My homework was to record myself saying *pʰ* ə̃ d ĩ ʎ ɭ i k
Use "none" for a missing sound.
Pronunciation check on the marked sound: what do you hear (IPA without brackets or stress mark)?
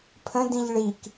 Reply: pʰ